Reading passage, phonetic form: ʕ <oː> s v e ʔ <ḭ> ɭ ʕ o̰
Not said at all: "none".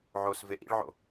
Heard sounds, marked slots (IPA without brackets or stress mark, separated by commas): oː, ḭ